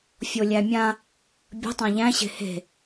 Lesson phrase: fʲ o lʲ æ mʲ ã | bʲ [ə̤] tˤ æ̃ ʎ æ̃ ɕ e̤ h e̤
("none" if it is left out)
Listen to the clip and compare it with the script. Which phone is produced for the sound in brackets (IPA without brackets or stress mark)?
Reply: ə̤